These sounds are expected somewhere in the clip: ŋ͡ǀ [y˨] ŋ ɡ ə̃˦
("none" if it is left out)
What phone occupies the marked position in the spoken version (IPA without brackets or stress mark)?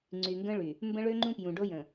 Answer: y˨